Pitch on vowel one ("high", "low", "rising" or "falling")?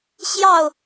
falling